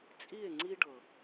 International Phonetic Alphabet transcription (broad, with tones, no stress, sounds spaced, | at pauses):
t͡sʼ i˦˨ e̯ ŋ͡ǀ i˦ ɖ ɤ˨